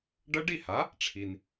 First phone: ɖ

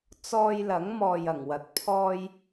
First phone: t͡s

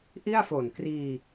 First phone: ʔ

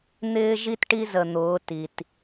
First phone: n̪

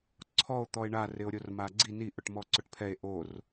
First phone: ǀʰ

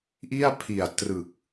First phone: ʔ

